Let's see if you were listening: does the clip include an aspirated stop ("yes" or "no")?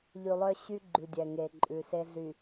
no